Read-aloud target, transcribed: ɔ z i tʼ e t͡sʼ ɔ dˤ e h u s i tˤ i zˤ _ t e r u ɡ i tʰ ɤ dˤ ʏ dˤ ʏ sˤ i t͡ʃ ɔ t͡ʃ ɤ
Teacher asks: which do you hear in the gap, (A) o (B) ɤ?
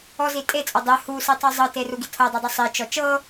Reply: B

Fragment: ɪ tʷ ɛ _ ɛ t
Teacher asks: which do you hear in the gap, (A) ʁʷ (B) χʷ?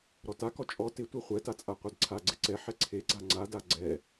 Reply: B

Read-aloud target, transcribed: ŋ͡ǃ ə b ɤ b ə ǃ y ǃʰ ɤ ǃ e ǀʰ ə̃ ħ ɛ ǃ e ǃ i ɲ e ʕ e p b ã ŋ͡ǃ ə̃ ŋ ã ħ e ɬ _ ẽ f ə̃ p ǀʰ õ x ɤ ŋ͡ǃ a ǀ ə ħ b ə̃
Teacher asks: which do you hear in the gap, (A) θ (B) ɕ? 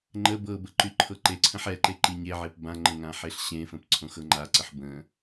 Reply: B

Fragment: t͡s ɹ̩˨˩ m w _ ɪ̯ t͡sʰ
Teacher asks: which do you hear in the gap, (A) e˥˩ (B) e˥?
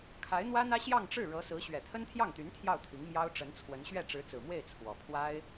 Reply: A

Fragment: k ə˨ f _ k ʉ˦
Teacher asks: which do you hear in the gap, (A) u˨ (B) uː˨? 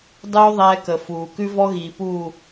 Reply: B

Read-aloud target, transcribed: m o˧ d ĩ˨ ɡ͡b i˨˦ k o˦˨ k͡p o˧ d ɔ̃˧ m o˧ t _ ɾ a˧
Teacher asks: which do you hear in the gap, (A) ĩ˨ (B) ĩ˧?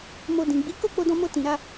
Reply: A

